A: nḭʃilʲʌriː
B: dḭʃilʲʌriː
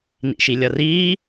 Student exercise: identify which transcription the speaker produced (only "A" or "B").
A